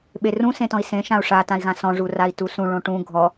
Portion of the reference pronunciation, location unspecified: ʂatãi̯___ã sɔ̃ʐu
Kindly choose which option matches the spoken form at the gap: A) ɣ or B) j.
A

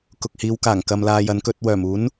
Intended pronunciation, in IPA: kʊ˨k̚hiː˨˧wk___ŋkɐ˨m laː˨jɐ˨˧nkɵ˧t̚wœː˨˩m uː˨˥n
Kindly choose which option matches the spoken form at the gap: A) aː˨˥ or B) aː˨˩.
B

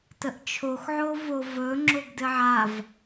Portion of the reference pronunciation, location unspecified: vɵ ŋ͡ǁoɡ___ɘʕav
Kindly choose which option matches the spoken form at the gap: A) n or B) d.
B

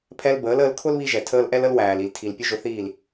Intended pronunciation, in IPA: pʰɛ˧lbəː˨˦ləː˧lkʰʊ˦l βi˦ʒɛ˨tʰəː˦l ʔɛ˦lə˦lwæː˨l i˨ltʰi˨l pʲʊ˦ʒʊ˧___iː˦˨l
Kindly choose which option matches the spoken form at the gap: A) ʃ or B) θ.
B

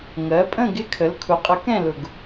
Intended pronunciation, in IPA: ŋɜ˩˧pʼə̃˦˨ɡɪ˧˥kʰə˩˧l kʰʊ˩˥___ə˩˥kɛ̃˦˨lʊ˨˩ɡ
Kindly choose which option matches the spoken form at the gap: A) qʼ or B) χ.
A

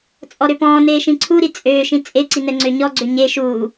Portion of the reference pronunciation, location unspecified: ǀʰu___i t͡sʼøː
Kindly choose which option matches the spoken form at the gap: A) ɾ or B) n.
A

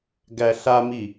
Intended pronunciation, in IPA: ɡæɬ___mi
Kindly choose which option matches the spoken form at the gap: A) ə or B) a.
B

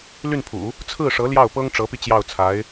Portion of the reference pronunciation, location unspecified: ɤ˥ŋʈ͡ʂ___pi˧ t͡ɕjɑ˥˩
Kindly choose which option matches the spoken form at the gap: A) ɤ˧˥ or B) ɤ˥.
A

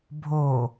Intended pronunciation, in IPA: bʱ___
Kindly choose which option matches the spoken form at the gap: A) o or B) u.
A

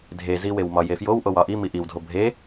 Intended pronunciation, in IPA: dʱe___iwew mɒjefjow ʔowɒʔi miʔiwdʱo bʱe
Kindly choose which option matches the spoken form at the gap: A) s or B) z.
B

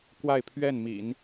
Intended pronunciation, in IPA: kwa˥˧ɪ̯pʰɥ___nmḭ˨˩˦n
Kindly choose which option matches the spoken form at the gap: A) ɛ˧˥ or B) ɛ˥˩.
B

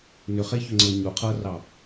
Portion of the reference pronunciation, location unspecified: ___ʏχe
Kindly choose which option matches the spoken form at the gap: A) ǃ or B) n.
B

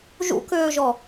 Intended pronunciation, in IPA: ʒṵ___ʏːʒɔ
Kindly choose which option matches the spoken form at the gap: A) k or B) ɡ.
A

